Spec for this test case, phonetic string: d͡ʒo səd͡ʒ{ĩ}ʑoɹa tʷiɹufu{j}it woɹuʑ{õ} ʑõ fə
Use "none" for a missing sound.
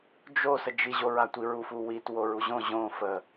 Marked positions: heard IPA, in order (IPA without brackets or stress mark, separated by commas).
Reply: i, w, õ